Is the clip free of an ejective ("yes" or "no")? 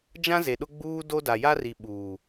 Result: yes